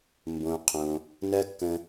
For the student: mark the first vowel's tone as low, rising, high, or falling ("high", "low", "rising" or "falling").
low